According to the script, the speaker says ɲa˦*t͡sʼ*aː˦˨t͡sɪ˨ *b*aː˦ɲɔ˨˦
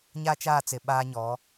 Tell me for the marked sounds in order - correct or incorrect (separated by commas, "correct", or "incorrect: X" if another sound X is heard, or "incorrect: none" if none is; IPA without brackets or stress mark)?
incorrect: t͡ʃ, incorrect: ɓ